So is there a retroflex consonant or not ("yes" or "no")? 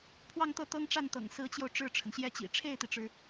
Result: yes